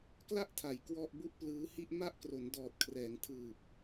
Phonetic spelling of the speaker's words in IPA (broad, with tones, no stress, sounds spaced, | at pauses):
k l a˥˩ ʔ tʰ a˩˦ j k w ɔ˥˩ ʔ b u˥˩ ʔ p l ɯː˦˥ h i˥˩ ʔ m a˥˩ ʔ k r o˩˦ n d ɔː˨˩ t̚ kʰ r ɛː˩˦ ŋ tʰ ɯː˨˩ p̚